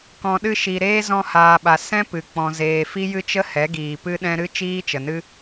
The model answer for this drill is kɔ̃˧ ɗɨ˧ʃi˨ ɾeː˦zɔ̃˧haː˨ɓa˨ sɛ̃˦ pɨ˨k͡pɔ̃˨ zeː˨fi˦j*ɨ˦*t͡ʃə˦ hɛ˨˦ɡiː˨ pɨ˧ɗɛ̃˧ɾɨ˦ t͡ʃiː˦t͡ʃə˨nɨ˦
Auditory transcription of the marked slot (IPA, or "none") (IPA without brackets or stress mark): ɨ˦